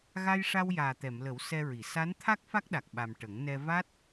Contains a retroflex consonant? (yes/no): yes